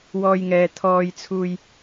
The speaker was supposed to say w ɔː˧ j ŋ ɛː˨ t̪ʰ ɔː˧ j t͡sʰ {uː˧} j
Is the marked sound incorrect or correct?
correct